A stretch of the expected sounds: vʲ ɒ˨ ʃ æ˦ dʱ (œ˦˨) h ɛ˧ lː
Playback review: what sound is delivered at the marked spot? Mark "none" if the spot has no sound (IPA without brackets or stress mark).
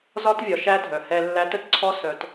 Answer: œ˨